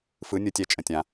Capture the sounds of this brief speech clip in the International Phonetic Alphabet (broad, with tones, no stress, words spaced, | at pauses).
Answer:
fɯ˩˧nʲɯ˩tʲɛ˩˧ t͡ʃʼə̃˩tʲã˩